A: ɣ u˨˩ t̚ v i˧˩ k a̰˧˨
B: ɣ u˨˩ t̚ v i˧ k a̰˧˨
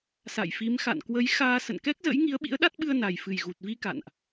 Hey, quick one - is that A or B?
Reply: B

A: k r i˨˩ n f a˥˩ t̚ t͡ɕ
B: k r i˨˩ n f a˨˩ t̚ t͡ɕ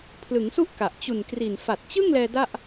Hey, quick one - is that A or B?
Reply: B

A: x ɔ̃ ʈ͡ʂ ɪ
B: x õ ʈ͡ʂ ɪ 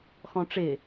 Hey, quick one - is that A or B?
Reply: A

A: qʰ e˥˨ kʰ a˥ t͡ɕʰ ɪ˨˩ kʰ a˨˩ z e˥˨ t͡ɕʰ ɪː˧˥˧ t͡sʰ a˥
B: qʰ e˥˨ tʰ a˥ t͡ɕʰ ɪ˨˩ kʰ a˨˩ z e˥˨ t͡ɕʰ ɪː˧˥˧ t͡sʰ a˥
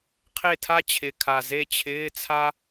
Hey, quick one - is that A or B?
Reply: B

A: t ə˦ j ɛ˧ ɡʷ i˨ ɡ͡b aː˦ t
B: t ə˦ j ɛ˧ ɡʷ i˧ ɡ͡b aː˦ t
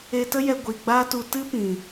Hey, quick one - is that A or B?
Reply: A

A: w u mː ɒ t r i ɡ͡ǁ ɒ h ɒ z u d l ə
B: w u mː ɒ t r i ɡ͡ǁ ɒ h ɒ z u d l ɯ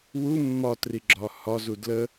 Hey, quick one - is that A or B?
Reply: A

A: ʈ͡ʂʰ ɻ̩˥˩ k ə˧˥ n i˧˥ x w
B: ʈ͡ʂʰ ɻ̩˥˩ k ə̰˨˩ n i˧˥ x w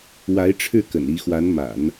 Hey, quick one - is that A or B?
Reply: B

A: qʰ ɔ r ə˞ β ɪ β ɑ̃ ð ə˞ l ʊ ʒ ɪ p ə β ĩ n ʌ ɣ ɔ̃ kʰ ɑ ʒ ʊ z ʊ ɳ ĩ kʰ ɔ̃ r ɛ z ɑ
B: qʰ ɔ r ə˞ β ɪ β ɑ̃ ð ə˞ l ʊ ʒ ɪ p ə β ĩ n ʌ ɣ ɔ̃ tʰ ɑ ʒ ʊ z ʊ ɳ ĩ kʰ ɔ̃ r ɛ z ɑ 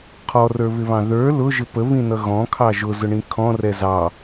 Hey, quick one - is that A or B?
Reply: A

